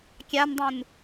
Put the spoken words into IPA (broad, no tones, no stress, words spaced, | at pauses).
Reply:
kʲandˤũn